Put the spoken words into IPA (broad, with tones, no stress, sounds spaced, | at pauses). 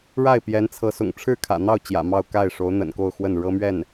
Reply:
ɻ a˥˩ ɪ̯ p j ɛ˧˥ n t͡sʰ ɤ˧˥ s ʊ̰˨˩ ŋ ʈ͡ʂʰ ɻ̩˥˩ kʰ ä̰˨˩ n̪ ɑ˥˩ ʊ̯ t͡ɕ j ä̰˨˩ m ɑ˥˧ ʊ̯ k a˥˩ ɪ̯ ʂ o˧˥ ʊ̯ n̪ ə̰˨˩ n k o˥˧ ʊ̯ x w ə˥˩ n ɻ ɤ˥ m ɥ ɛ˥˩ n